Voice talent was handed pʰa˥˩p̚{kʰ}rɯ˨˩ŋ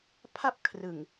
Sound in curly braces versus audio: correct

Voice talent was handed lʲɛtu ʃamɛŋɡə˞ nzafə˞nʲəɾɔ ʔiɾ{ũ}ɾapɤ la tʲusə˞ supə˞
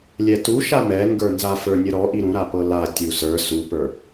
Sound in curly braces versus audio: correct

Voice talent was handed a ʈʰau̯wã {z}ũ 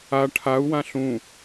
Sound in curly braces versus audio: incorrect: ɬ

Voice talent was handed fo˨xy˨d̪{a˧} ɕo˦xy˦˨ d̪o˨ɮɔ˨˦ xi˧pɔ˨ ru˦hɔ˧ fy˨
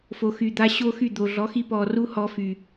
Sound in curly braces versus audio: correct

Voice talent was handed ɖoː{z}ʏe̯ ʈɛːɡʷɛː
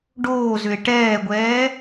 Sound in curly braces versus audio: correct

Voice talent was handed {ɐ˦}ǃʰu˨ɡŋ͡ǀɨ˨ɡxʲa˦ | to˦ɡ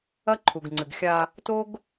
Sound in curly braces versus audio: correct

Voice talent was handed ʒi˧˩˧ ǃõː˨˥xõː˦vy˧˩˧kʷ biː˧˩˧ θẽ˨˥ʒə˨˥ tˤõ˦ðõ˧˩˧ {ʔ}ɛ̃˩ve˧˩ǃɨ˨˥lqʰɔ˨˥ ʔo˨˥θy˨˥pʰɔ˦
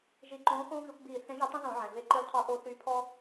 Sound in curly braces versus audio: incorrect: ʕ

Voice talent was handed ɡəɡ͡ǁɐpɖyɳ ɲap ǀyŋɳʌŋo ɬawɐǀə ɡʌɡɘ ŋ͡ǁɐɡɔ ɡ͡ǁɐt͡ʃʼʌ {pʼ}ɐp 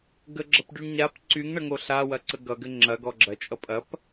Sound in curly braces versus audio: correct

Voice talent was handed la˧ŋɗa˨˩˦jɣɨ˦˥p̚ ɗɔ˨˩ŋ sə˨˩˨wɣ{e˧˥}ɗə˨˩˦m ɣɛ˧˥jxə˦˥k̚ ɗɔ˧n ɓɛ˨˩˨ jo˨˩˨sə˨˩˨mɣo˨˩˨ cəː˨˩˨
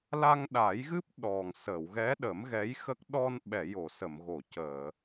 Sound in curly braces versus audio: incorrect: ɛ˧˥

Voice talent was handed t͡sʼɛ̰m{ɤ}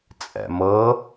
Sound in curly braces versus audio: correct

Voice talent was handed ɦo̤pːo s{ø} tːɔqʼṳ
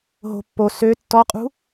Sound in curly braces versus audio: correct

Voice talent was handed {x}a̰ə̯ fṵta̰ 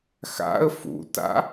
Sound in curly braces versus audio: correct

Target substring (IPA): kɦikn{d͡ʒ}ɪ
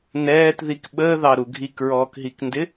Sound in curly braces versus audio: incorrect: d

